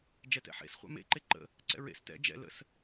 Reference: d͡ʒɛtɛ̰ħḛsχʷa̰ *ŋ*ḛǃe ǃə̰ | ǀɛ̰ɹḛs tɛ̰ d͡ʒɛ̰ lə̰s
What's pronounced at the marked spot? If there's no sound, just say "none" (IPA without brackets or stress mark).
m